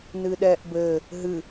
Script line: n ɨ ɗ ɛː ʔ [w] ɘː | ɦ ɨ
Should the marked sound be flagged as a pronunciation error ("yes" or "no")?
yes